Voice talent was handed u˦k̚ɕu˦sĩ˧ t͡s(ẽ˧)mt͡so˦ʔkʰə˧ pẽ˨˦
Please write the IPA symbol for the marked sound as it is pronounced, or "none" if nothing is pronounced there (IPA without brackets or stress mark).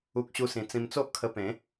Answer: ĩ˧